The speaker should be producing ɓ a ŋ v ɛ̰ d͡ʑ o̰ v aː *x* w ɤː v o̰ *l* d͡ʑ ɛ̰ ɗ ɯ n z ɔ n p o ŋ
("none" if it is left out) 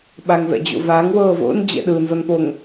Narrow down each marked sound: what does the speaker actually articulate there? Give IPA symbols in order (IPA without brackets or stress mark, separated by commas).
ŋ, n